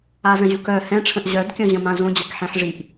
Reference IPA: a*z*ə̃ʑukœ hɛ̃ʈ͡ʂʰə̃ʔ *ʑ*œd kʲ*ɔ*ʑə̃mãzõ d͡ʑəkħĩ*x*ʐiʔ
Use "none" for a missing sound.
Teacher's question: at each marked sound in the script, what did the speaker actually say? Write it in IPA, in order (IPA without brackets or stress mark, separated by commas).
z, ʑ, ɔ̃, ħ